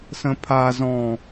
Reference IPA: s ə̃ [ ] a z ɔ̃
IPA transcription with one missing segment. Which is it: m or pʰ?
pʰ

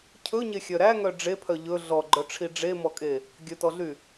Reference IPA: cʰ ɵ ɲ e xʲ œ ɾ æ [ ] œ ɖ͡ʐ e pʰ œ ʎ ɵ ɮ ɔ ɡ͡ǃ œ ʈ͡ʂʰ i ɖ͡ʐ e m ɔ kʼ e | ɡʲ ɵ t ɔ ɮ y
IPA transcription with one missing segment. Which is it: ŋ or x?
ŋ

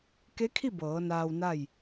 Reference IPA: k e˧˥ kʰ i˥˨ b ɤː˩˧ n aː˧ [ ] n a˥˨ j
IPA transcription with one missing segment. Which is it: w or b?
w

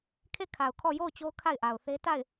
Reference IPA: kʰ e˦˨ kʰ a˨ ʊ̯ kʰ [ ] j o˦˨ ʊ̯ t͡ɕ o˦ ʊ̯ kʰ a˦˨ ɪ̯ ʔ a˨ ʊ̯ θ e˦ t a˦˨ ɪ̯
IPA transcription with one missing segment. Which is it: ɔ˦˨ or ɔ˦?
ɔ˦˨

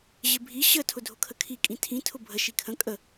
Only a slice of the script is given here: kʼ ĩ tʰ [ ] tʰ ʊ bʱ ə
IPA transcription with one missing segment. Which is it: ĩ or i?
ĩ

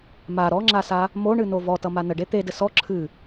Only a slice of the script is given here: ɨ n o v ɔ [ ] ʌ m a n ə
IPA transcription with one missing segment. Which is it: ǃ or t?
t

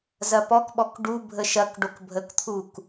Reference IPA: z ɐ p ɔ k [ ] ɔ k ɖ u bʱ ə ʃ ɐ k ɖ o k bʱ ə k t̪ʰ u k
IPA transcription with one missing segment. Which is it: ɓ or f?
ɓ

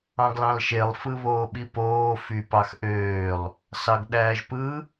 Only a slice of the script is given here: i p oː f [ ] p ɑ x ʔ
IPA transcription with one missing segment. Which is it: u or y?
y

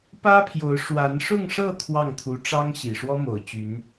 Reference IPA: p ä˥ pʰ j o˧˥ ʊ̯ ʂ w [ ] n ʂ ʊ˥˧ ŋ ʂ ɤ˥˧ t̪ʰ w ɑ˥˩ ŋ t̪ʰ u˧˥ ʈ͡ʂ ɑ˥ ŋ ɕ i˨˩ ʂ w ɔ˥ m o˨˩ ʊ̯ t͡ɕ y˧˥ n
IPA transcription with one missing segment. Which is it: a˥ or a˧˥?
a˧˥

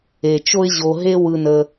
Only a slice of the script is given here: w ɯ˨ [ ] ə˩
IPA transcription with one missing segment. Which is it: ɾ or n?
n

